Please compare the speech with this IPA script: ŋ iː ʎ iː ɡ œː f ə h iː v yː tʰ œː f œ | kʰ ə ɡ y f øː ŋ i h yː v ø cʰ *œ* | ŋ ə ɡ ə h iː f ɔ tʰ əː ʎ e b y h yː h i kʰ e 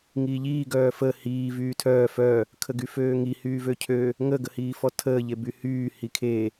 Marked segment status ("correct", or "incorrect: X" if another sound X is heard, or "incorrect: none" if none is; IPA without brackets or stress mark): incorrect: ø